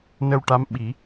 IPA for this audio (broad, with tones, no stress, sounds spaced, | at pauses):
n ə˧ w ʈ a˧˥ m ɓ i˨˩˦